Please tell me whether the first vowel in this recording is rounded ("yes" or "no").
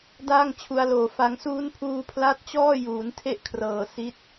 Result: no